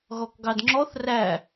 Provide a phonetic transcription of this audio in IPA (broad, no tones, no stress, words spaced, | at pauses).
ɣɔkɡɑdŋ͡ǁɔθ ræ